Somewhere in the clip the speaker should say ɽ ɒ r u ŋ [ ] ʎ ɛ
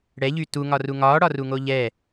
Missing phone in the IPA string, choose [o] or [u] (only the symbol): o